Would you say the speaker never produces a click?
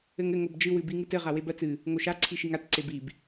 no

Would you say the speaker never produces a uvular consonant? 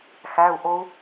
yes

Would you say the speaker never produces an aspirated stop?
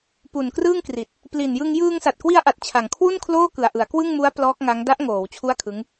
no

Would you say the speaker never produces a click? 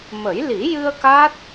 yes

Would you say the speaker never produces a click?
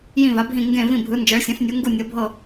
yes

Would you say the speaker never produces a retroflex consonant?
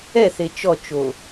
yes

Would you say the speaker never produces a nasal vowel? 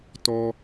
yes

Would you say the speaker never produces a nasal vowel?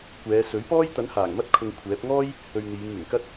yes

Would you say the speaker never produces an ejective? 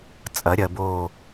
no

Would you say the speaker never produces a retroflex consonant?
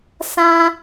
yes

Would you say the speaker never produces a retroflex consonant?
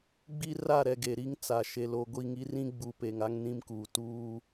yes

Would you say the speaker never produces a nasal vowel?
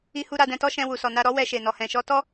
no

